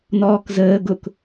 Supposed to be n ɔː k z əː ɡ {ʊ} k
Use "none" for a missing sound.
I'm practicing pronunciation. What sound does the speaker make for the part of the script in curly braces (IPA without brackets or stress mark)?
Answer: ʊ